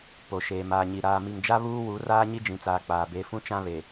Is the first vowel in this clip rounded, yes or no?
yes